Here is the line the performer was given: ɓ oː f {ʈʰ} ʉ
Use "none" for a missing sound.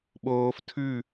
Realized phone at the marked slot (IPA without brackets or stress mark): tʰ